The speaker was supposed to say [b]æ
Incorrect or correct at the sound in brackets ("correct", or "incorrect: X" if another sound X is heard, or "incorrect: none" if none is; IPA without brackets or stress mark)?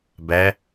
correct